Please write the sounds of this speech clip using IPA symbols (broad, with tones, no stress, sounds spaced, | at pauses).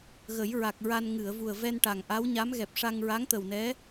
ɣ ə˨˩˦ j ɹ a˨˩ k̚ ɹ a˧ n ŋ ɨ˨˩˨ ə̯ v u˨˩ ə̯ v ɛ˧ n ʈ a˨˩ ŋ ʔ a˧˥ w ɲ a˧˥ m ɣ ɛ˨˩ p̚ ʂ a˧ ŋ ɹ a˧˥ ŋ t̪ ə˨˩ w n ɛ˧˥